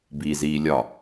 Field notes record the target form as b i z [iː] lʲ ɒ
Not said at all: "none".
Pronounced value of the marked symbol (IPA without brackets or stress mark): iː